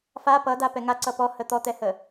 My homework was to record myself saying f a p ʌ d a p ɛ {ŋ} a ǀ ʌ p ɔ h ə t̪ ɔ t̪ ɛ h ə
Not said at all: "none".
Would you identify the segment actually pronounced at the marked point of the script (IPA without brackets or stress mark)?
ŋ